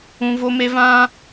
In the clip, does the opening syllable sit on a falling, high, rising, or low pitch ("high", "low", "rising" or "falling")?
high